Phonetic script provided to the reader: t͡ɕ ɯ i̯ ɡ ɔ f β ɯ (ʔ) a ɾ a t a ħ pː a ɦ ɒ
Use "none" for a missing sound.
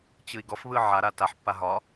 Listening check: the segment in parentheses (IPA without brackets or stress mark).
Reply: ʕ